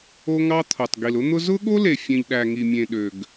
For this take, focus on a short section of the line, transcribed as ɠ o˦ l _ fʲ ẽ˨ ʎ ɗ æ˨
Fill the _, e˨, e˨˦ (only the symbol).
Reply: e˨